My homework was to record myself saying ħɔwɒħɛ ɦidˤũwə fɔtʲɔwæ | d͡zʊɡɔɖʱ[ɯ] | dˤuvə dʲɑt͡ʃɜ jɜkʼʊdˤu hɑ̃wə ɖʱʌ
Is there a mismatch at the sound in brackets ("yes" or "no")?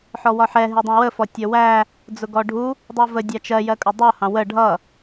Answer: yes